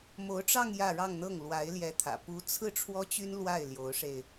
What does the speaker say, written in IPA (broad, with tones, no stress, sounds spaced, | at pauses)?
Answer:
m o˧˥ ʊ̯ ʈ͡ʂ ɑ˥˧ ŋ j ä˥˧ ɻ ɑ˥˧ ŋ n̪ ɤ˥˩ ŋ l w a˧˥ ɪ̯ l j ɛ˧˥ t̪ʰ ä̰˨˩ p u˧˥ t͡sʰ ɹ̩˥˩ ʈ͡ʂʰ w ɔ˥ t͡ɕ y˥ n l w a˥˩ ɪ̯ l j o˧˥ ʊ̯ ʂ e˧ ɪ̯